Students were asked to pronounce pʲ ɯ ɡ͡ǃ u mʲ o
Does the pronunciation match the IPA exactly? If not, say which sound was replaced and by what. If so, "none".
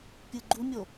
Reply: none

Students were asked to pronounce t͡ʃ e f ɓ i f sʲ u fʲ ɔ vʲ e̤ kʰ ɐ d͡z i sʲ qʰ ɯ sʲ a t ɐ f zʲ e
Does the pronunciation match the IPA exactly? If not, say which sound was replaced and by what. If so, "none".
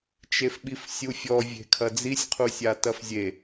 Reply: ɯ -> u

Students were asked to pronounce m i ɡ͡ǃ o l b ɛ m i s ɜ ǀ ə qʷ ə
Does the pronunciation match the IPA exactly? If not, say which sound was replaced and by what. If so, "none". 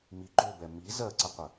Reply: s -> z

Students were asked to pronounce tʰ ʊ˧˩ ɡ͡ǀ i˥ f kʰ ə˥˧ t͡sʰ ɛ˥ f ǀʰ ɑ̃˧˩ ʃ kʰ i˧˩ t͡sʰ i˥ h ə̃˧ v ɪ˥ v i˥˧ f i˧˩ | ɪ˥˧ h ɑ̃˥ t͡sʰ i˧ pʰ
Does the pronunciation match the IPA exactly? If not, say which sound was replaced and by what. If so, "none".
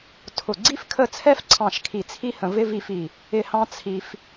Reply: pʰ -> f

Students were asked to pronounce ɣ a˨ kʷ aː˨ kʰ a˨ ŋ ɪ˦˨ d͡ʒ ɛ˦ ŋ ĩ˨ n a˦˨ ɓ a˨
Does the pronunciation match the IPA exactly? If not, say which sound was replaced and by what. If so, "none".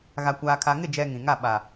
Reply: n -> ŋ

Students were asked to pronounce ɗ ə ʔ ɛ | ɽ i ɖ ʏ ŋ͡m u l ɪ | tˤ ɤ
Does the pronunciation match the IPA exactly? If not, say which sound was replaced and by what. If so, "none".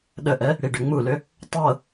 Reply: ɪ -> ʏ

